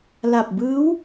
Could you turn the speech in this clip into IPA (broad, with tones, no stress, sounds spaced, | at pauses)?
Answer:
l a˨˩ p̚ b ɯː˦˥ w